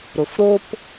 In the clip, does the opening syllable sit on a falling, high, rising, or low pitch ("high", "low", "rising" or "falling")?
low